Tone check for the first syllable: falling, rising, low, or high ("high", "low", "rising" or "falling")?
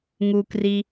low